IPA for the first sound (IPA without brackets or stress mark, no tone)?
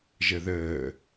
ʒ